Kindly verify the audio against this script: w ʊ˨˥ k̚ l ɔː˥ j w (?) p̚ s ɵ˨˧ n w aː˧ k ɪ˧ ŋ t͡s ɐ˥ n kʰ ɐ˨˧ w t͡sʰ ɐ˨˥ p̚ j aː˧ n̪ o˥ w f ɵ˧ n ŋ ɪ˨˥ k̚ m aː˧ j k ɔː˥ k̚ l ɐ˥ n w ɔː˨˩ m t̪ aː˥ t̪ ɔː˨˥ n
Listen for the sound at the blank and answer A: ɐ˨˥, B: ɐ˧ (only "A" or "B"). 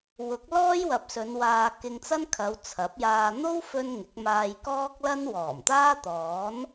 A